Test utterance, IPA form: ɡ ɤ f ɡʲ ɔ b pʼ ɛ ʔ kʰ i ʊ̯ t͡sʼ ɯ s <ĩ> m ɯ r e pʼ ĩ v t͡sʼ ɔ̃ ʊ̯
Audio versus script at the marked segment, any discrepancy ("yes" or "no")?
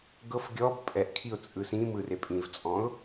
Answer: no